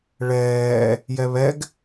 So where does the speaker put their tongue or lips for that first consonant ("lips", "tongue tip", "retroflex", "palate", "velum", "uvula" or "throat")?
retroflex